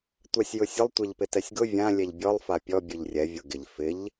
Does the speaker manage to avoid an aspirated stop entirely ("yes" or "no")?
yes